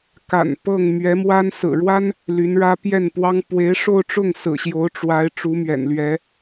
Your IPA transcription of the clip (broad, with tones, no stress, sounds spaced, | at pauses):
k a̰˨˩ n p ɤ˥˩ ŋ m ɥ ɛ˧˥ m w a˥ n s ɹ̩˨˩ ɻ w a˥ n | l y˧˥ n ɻ ä˥ p j ɛ˥˩ n p w ɑ˥ ŋ p w e˧˥ ɪ̯ ʂ o˥˧ ʊ̯ ʈ͡ʂ ʊ˥˩ ŋ s ɹ̩˨˩ ɕ j o˧˥ ʊ̯ ʈ͡ʂ w a˧˥ ɪ̯ ʈ͡ʂ u˧˥ m ɥ ɛ̰˨˩ n l ɥ ɛ˧˥